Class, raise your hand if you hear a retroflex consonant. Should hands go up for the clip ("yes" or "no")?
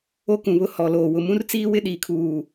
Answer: no